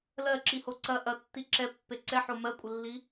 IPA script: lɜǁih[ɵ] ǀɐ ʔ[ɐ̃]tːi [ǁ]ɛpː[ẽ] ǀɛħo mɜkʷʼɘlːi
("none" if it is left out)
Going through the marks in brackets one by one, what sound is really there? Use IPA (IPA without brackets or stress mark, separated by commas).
o, ɐ, ǁ, e